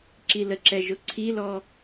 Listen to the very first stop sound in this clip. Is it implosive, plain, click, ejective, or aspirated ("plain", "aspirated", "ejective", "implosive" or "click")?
click